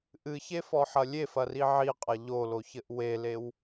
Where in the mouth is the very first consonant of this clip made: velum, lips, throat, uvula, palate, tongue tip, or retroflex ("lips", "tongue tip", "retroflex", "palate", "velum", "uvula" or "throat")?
throat